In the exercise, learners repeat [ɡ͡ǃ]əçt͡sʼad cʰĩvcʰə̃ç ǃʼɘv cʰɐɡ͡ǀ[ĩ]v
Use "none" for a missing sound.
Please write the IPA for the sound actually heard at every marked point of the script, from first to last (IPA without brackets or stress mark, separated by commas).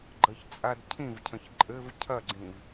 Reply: ɡ͡ǃ, ĩ